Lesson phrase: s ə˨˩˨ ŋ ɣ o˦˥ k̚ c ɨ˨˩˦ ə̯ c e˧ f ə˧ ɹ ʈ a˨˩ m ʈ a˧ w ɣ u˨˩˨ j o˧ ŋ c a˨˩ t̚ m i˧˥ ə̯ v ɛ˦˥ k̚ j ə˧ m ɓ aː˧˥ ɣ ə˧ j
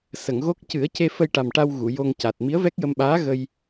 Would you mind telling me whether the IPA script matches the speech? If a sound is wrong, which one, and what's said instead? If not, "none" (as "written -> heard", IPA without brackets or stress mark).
ɹ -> j